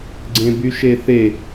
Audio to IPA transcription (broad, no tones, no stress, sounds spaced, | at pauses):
ɡ͡ǀ ẽ b y ʃ e θ e